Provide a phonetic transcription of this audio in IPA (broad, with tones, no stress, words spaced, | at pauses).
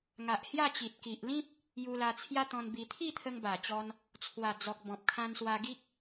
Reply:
ŋa˨ʔhja˥˧t͡ɕi˨t̚ ki˨ʔlĩ˦p̚ | ju˧la˧ t͡sʰja˦t̪ɔ̃˧nbi˧ t̪ʰi˥˧t̪ʰə˧ŋba˨˩t͡ɕɔ˧n | t͡sʰwa˨˩d͡zɔ˨k̚ bɔ̃˨p̚kʰã˧nswa˧ ɡi˦k̚